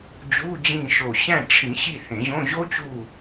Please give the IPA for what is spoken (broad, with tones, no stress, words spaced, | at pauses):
d͡ʑu˧˥˧d͡ʑĩ˦˨ ʃo˨˩ɕæ̃˦˨ʈ͡ʂʰĩ˨˩˦ ɕi˦˨ θẽ˨˩˦ʑõ˧˥˧ ʑo˥t͡ɕu˦˨